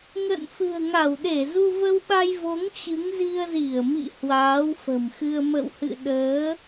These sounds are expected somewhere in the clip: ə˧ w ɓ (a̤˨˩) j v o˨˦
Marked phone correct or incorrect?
incorrect